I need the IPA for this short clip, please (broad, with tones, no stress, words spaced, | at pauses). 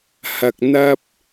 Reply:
hɐ˧k̚ n̪ɐ˥p̚